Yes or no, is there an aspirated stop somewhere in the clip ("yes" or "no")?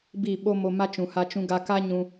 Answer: no